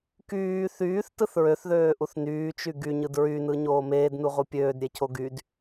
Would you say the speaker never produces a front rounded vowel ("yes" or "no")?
no